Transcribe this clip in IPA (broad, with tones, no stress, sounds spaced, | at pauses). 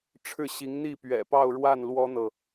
ʈ͡ʂʰ ɻ̩˥˩ ɕ i˧˥ ŋ n̪ i˥˩ p ɥ ɛ̰˨˩ p ɑ˥˧ ʊ̯ ɻ w a˥˩ n l w ɔ˥ n̪ ɤ˨